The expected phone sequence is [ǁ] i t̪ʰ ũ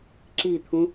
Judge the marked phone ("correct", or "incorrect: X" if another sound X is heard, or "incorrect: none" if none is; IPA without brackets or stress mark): correct